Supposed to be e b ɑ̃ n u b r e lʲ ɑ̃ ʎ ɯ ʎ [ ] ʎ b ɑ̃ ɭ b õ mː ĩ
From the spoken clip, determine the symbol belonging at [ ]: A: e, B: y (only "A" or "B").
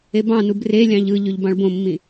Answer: B